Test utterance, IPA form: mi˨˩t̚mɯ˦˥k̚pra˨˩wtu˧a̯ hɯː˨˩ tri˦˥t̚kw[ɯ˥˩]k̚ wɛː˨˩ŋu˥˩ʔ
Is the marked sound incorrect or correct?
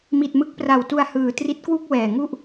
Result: incorrect